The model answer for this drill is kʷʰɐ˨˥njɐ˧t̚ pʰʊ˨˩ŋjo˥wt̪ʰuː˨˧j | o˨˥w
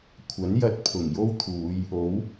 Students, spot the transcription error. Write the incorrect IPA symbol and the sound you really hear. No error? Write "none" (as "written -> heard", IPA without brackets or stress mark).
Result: none